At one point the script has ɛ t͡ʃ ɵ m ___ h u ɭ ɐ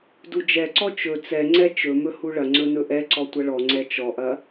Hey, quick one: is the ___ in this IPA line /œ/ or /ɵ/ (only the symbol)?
ɵ